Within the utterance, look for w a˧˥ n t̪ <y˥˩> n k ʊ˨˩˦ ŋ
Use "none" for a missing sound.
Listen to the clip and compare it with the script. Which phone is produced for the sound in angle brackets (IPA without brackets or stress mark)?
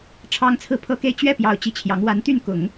y˥˩